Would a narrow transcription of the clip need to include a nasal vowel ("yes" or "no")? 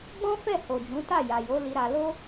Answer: yes